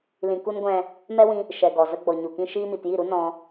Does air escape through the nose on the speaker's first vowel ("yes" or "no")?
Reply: yes